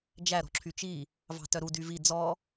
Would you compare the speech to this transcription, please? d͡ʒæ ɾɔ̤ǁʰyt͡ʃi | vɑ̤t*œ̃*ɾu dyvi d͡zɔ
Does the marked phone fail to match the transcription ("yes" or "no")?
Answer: yes